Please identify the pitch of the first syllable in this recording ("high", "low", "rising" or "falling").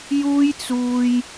high